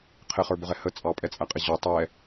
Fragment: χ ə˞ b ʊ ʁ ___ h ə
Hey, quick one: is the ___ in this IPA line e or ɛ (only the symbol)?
ɛ